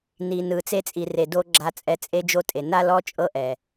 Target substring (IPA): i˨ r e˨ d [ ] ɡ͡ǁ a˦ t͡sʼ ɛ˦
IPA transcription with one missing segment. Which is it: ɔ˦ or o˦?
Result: o˦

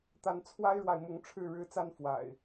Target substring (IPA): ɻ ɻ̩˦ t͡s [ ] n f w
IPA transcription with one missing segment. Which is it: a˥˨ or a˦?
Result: a˦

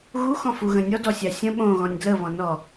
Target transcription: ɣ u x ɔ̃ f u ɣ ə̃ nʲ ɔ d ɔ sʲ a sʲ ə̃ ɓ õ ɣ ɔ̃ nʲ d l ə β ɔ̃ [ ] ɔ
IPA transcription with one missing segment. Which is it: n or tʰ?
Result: n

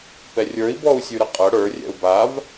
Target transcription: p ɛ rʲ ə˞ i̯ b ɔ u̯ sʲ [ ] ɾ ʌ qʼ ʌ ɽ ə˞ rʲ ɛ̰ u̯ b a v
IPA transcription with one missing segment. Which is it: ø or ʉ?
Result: ʉ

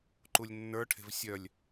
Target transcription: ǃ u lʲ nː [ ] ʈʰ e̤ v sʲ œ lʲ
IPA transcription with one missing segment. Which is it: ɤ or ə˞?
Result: ə˞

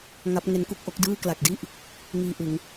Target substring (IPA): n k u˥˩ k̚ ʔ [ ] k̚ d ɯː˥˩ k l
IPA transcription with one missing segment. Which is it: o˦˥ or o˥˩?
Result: o˦˥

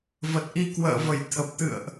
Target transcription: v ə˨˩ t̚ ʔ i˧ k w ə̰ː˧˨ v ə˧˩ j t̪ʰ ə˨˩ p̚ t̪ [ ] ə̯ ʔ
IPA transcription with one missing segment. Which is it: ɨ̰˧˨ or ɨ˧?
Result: ɨ̰˧˨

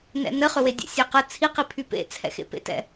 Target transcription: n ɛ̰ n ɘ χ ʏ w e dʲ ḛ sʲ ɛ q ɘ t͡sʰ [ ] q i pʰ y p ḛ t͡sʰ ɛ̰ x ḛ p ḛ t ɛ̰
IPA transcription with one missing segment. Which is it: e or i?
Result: i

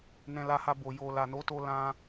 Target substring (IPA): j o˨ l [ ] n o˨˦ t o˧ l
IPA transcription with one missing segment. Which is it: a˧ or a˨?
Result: a˨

